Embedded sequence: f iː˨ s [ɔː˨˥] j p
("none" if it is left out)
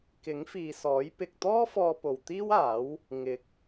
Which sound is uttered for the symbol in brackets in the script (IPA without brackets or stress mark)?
ɔː˨˥